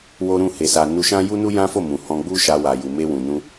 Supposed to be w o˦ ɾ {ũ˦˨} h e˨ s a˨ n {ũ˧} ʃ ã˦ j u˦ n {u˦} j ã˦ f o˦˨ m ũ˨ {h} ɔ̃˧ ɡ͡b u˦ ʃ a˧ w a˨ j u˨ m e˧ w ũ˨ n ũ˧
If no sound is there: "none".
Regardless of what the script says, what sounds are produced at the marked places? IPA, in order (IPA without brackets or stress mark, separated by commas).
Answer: ũ˦˨, u˧, u˦, h